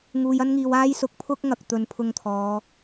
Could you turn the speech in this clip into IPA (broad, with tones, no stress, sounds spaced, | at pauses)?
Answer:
ŋ uː˨ j ɐ˥ n ŋ iː˨ w aː˥ j s ʊ˨ k̚ pʰ ʊ˥ k̚ ŋ ɐ˨ k̚ t̪ ɵ˨˧ n pʰ ʊ˧ ŋ t̪ʰ ɔː˨˧